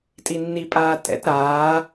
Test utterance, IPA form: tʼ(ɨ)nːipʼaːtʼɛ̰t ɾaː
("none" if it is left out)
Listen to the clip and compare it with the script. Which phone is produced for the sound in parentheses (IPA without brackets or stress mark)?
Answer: i